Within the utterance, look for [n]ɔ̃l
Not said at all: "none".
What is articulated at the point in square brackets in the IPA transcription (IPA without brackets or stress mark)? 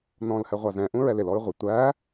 n